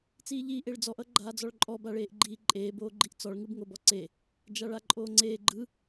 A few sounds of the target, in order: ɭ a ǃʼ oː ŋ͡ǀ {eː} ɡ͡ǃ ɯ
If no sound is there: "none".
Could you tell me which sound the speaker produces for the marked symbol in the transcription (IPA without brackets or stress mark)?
eː